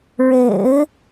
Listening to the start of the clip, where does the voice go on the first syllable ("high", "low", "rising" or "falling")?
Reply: low